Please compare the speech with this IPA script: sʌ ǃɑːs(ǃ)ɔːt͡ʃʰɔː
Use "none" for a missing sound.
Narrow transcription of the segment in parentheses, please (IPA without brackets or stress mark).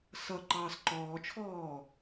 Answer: ǃ